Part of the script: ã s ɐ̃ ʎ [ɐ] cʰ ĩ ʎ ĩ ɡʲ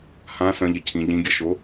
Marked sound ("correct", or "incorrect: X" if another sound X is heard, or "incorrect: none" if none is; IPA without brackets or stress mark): correct